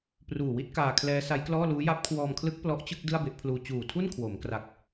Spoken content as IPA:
p r uː˨˩ w i˥˩ t̚ k aː˧ kʰ l ɛː˦˥ s a˦˥ j k l ɔː˥˩ l uː˦˥ j a˦˥ p̚ kʰ w ɔː˧ m kʰ l ɯ˦˥ k̚ p l ɔ˦˥ ʔ t͡ɕ ɯ˥˩ k̚ d ɯ˥˩ a̯ b e˦˥ ʔ pʰ l uː˧ t͡ɕ uː˨˩ tʰ u˥˩ n kʰ w o˩˦ m k r a˨˩ k̚

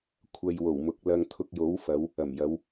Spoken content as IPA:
kʷʰ ɐ˧ j w o˨˩ w m ʊ˨ k̚ l ɐ˧ ŋ t̪ʰ ʊ˧ k̚ j o˨˥ w f ɐ˨˧ w | ɐ˨˩ m j ɐ˨˧ w

